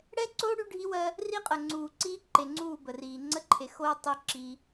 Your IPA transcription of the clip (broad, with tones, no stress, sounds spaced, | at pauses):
ɽ ɛ˦ ǀ oː˦ ɽ y˦ ɖʱ i˦ w ɜ˦ | r i˦ qʼ ə˨ ŋ͡ǀ uː˨ ǀ iː˦ ǃ e˨ ŋ͡ǀ uː˦˨ b ə˨ r iː˨ ŋ͡ǀ ə˦ ǃʰ e˨ x oː˦ tˤ i˦ ǁ i˦